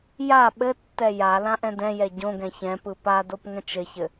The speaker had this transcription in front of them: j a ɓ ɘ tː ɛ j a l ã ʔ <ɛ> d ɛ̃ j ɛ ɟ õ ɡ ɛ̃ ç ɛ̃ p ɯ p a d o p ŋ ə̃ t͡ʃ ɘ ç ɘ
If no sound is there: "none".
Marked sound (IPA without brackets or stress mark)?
ɛ̃